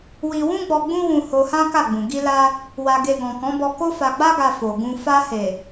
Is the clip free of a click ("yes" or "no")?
yes